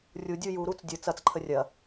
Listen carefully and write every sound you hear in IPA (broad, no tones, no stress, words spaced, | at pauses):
rʲudʲu juɾut͡s dʲə t͡sɐt͡sǃʰə rʲɐ